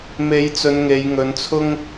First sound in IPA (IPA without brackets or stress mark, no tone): m